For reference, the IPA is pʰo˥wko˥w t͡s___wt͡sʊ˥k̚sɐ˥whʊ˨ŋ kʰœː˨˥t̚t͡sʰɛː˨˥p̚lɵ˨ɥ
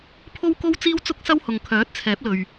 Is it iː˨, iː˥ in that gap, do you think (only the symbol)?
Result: iː˥